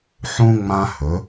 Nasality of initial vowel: nasal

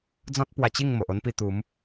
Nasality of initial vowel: nasal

